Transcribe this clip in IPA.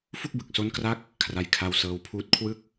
fu˥˩k̚bɯ˨˩k̚so˦˥nkra˦˥k̚ | kʰra˧jkʰa˧w sɤː˧wpʰuː˦˥t̚kʰwɯ˥˩k̚

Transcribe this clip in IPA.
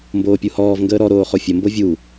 mboːpʲuhɔːv ŋɡəːɾɔ ɾoːχofʲə mbovʲu

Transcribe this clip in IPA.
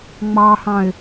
ŋ͡mɑhɑ̃ɪ̯

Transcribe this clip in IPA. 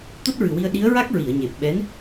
t̪o˦˥t̚ɹɨ˨˩wi˧ə̯ ɗi˧˥ə̯ɹa˦˥k̚ ɹi˨˩˨ə̯ɲe˨˩p̚ɓɛ˧˥n

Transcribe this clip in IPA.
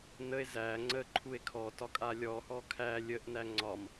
nəe̯ zæ ŋ͡ǀəǃʰue̯ kʰɔtɒkʼa lʲɔhɔ kʰæ lʲəʔnæ ŋ͡ǀɒm

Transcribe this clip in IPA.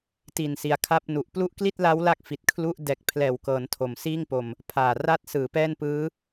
ti˨˩nsi˩˦a̯ kʰa˦˥p̚nu˨˩ʔ plu˦˥ʔkli˥˩t̚la˦˥w la˥˩k̚fi˨˩t̚kʰlu˦˥ʔ dɛː˨˩k̚pʰlɛː˨˩wkɤː˩˦n tʰo˨˩msiː˥˩ŋpo˧m | pʰaː˨˩ra˦˥t̚sɯː˩˦ pɛː˥˩npɯː˦˥

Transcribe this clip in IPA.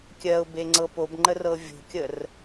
kʲɜʊ̯be ŋ͡ǀɤpobŋ͡ǃə rɤvʲo̤kʲər

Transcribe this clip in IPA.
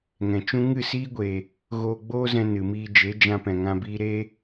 ŋɛ̃˨t͡ʃũ˦ ŋɨ˦˨siː˦ɡʷe˨ | ɣoː˧ɡ͡boː˦zɛ̃˧ nɨ˨miː˧ d͡ʒe˨˦d͡ʒã˧pɛ̃˨ŋã˧ biː˧ɾe˦

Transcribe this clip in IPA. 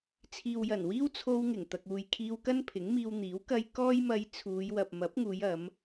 t͡sʰiː˨wjɐ˨˩n wiː˥wt͡sʰo˧wŋɪ˨˩ŋ t̪ɐ˨k̚uː˨jkʰiː˧w kɐ˥npʰɪ˨˥ŋmiː˧wn̪iː˨˥w kɐ˧j kɔː˥jmɐ˧jt͡sʰuː˨˧j wɐ˨p̚mɐ˨˥p̚ŋuː˨˧jɐ˨˧m

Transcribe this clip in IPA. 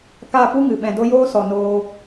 ka˦˨pu˦ŋɨ˨ ɓɛ̃˨do˦ joː˦sɔ˨ noː˧

